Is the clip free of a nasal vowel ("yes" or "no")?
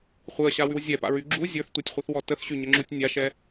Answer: yes